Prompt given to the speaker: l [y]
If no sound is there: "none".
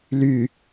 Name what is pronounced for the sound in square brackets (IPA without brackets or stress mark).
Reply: y